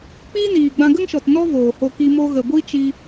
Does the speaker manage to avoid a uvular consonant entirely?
yes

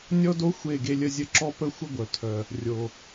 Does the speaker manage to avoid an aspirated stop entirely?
no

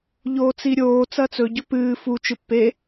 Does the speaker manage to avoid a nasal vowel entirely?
yes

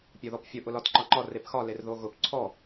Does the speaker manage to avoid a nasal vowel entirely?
yes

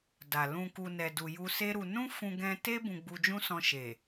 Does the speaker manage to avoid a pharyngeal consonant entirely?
yes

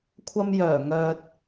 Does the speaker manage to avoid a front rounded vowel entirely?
no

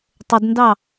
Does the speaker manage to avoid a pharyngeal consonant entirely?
yes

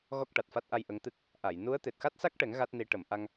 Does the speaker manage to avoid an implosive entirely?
yes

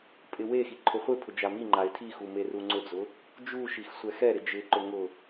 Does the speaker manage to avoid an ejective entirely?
no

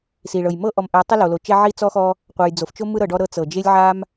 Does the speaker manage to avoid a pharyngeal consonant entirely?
no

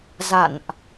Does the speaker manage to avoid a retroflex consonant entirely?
yes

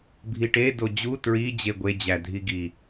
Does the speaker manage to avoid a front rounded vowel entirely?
yes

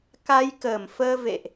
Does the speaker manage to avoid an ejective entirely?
yes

